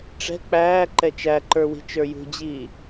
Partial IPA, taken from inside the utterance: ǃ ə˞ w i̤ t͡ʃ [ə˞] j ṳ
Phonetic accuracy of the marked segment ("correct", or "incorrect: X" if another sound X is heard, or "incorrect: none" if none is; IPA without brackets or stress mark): correct